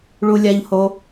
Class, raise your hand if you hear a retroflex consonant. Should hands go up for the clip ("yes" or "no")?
yes